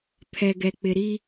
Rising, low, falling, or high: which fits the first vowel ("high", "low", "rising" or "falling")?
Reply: low